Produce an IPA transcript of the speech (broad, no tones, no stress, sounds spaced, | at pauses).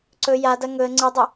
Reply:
ǀ ɵ j a d ɐ ŋ ɵ ə̯ ŋ͡ǀ ɨ dˤ ɨ